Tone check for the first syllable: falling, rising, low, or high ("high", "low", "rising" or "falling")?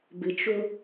low